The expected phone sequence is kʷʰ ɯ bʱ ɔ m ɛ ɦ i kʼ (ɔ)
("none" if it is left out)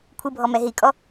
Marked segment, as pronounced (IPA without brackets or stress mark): ɔ